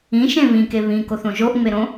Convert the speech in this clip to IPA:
ĩ ʃ ẽ β ĩ k e β ĩ k o θ õ ʒ o ʔ ŋ͡m e ɾ õ

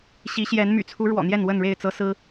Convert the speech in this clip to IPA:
ɕ i˨˦ ɕ j ɛ˨˦ n m y̰˨˩ t͡sʰ u˨˦ ɻ w ɔ̰˨˩ n̪ j ɛ˥˨ n w ə˥˨ n ɻ e˥˨ ɪ̯ t͡s ɤ˦ s ɹ̩˦

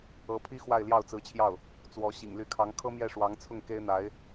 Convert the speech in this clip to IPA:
ɤ˧˥ pʰ i˥ x w a˥˧ ɪ̯ l j ɑ˥˩ ʊ̯ t͡s ɹ̩˧˥ t͡ɕʰ j ɑ˥˩ ʊ̯ | t͡s w ɔ˧˥ ɕ ḭ˨˩ ŋ l y˧˥ kʰ ɑ˧˥ ŋ kʰ ɤ˥ m j ɛ˥˩ ʂ w ɑ˧˥ ŋ t͡sʰ ʊ˥˩ ŋ k e˥ ɪ̯ n̪ a˧˥ ɪ̯

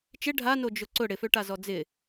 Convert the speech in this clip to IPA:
t͡ʃ ɪ ɖʱ a n o d͡ʒ ʊ ǀ ʊ ɽ ɪ f ø ʈ a z ɔ d͡z ɪ

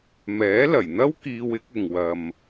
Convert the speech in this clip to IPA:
m ɛː˨˥ l ɐ˨˩ j n̪ ɐ˥ w k iː˧ w ɪ˨˥ k̚ ɪ˨ ŋ w ɐ˨ m

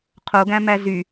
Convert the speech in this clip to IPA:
qʰ o ɡ æ̃ m æ z y

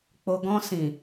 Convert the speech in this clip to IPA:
k͡p o˧ ɡ ɔ̃˧ s ĩ˨

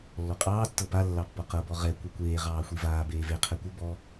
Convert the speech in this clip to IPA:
lː ɔ qʼ ɑː tː ɤ p a lː ɑ pː ɔ q ɤ b ɔ ʁ ɛ kʷ e kʷ eː ʁ ɑː xʷ i v aː b eː v e qʰ ɛ kʷ ɤ b ɔ

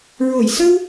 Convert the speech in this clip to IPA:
ɹ o˨˩˨ j s ə˧ w

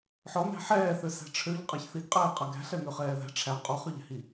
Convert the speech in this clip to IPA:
ħ ɔ n æ̤ ħ ɛː θ ø s æ̤ ʈ͡ʂʰ ø ʎ qʼ a ç θ i ɡ qʼ ɛː qʼ a ɡ æ̤ ɬ ɛ n ø χ ɛː ð æ̤ ʈ͡ʂʰ æ qʼ ɔ χ ø ʎ æ̤ h i

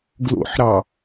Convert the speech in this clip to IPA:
ɡ l o̰ ħ ɾ ɑ

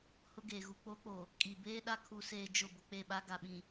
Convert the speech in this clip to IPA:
h ʊ˦ ɡ eː˨ ɣ u˨ k͡p o˦ k͡p o˨ | kʼ i˨ b eː˦ ɗ a˦ kʰ u˨ s eː˨ d͡ʒ ʊ˦˨ b ʊ˨ k͡p e˦˨ ɓ a˦ ɡ a˨ ɓ ĩ˨

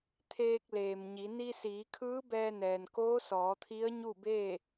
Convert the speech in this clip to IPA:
t̪ʰ eː˧ k̚ l eː˩ m ɲ i˩˧ n i˧ s iː˩˧ kʰ ɯː˧˥ b ɛː˧ n ɛː˩ n k oː˧˥ s ɔː˩˧ t̪ʰ i˧˥ ə̯ ɲ u˥˨ b eː˥˨

